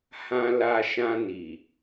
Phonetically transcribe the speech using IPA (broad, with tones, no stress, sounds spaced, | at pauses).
h ã˧ l a˧ ʃ ã˧ n i˨